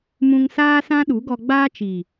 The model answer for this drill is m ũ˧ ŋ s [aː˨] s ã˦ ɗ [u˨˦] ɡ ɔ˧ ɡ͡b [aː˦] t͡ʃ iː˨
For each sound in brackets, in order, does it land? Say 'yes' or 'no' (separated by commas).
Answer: no, yes, yes